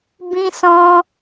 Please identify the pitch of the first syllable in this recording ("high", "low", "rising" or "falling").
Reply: high